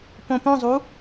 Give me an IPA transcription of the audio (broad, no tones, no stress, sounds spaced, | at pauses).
p õ p õ zˤ u